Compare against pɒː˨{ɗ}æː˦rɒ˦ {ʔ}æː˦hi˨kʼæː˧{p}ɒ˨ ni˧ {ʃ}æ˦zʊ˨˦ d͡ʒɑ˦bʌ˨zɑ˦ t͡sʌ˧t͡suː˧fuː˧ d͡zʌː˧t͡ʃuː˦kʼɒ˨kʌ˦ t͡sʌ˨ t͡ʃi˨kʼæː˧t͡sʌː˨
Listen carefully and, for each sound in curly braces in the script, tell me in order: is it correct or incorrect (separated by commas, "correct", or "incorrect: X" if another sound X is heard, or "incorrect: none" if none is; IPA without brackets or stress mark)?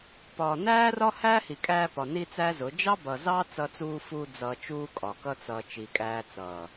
incorrect: n, incorrect: h, correct, incorrect: t͡s